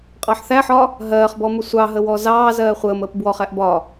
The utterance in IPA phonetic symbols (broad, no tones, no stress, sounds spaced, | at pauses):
qʼ ɑ ħ θ æ ħ ɒ | ɦ ɜː χ b ɔ m ʊ sʷ ɑ ɦ ə w ɔ z ɑː z ɜː χʷ əː m əː p b w ɔ χ æ ʔ b ɒ